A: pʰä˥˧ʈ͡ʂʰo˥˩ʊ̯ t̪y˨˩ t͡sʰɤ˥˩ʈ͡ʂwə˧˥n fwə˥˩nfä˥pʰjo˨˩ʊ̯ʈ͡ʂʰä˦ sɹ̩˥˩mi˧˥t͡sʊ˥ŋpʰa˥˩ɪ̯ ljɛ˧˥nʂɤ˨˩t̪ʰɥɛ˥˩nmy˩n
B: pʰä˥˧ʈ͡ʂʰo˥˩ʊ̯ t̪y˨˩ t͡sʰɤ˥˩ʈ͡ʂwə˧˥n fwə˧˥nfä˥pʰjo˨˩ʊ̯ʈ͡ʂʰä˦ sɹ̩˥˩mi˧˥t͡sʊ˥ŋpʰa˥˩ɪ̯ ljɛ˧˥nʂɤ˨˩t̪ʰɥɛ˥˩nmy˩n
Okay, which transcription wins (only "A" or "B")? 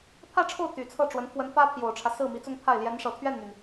B